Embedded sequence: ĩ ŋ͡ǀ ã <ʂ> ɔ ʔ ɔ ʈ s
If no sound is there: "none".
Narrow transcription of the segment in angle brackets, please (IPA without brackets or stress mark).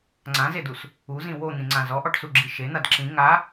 z